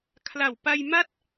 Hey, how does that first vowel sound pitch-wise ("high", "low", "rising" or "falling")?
low